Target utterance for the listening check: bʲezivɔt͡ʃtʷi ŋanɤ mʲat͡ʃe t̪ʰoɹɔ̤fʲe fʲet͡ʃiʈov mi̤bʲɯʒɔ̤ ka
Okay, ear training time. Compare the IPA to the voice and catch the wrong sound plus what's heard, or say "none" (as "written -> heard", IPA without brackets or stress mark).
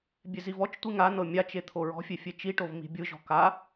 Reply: none